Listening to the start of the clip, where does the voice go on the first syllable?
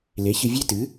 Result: rising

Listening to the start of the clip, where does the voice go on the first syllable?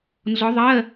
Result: rising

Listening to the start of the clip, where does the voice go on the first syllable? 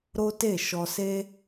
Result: high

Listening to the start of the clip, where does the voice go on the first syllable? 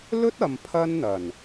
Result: high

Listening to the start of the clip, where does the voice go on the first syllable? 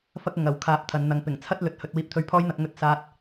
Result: high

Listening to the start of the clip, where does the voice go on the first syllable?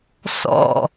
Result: falling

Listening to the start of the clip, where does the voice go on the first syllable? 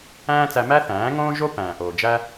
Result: high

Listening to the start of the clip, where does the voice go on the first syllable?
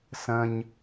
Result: low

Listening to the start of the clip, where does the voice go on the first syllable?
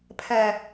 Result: low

